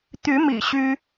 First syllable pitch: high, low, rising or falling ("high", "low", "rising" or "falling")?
rising